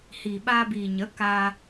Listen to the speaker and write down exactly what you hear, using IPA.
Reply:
h iː˨ ɓ aː˧ b iː˨ ɲ ə˨˦ k a˧

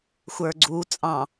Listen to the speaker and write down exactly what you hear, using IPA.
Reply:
xʷ ə˞ ɡ͡ǀ u t͡sʼ ɑ̃

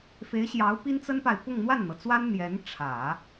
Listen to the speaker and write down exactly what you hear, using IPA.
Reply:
f e˧˥ ɪ̯ ɕ j ɑ˧˥ ʊ̯ p i˥ n t͡s ə˥ n p a˨ ɪ̯ p ʊ˥˧ ŋ n̪ w a˥˩ n n̪ ɤ˩ t͡s w a˥ n n̪ j ɛ˧˥ n ʈ͡ʂʰ ä˨˩˦

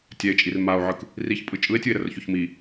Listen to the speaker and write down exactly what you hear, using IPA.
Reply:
tʲ ɛ e̯ t͡ʃʼ i r m a o̯ ʕ ɯ k | r i ç pʼ ɯ t͡ʃʼ ɯ e̯ tʲ ɯ e̯ ɾ ə r ç o ç m i

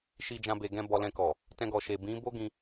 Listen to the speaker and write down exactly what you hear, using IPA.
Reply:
ʃ i˧ d͡ʒ ã˧ b e˨ ɡ ɛ̃˧ b ɔ˧ l ɛ̃˧ k ɔ˨ | t ɛ̃˧ ɡ ɔ˨ ʃ e˨ b ĩ˨˦ b o˦ ɡ ĩ˧

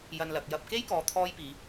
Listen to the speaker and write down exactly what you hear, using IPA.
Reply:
j ɐ˧ n l ɐ˨ k̚ j ɐ˧ p̚ k e˥ j k ɔː˨ t̪ʰ ɔː˥ j p iː˨˧

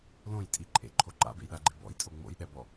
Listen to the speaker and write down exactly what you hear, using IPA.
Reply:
l õ j tʼ i ǃʼ ḛ ǃʰ o ǃ a̰ b ḛ j ɗ a ɡ͡ǃ ḛ b ɔ̰ j tʼ o ŋ͡m o̰ j ɗ ɛ b ɔ

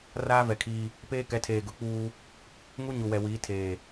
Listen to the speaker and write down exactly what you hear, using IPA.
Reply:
r aː˦ v ɛ˨ kʰ iː˦ | p eː˦ k ɛ˨˦ tʰ eː˨ ɡ ʊ˨ k͡p uː˦ | ŋ u˦ ɲ u˨ w ɛ˨ w iː˨˦ tʰ eː˨

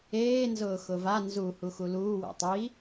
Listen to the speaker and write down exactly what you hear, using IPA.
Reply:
eː n z ʊː x ʊ v a n z u h u x u l uː w ɛ̰ tˤ i

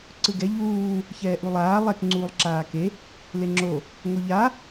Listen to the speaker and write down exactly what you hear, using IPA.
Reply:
ǀ ɯ ɡ ɛ ʎ uː | ç ɛː ʔ u lˠ aː lˠ ɛ k ŋ͡ǀ uː lˠ ǁ aː k e | l e ŋ͡ǁ o | ŋ o ʎ a

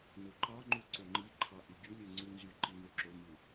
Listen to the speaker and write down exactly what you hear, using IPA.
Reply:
n o ǃ ɑ ŋ͡ǃ u ǀ o ŋ͡ǃ i ǃʰ ɑ ʔ y ɡʲ u lʲ ɯ ŋ͡ǀ u n z y ǃ i n ø ǁ o m ɯ

